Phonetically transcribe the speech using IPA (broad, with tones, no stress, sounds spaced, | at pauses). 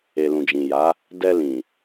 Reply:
e˨ l ũ˨ d͡ʒ ĩ˨ j a˨˦ | d ɛ˧ l ĩ˨